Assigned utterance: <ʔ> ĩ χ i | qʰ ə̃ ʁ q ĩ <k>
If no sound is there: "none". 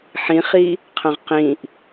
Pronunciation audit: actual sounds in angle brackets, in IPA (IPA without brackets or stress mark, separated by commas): ħ, ʔ